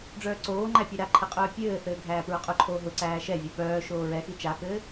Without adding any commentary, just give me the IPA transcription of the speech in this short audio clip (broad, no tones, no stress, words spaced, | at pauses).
ɖ͡ʐœːǀoːŋ͡ǃæ pʲɛɾaǃʰɘ qʼœːpʲɘːθɘː ɡʱæːpɹʊqʼʊǃʰoː ɦʊǀæː ʃɛvʲœ pœː ʃoːɹɛxi t͡ʃakɘː